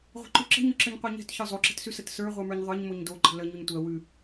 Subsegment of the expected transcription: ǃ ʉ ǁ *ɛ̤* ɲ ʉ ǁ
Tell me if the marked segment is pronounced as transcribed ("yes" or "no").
no